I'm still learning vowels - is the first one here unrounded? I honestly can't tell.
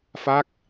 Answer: yes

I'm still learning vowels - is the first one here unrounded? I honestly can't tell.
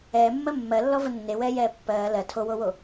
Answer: yes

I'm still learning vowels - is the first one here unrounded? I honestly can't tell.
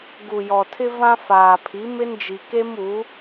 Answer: no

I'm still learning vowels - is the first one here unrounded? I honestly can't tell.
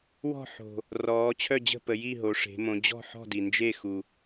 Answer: no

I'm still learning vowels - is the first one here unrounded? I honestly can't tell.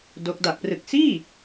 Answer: no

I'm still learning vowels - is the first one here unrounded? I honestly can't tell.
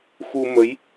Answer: no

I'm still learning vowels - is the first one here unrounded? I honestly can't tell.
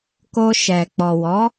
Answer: no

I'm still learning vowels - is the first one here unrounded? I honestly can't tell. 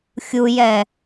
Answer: no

